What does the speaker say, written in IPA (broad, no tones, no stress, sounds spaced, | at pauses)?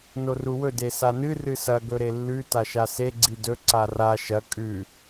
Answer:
n o r u w ɵ d e s a n ɨ r ɨ s ɐ ɡ ɵ ɾ e lː ʉ t a ʃ a s e ɡ͡ǀ i d ɵ ǀ a r a ʃ ɐ kʼ ʉ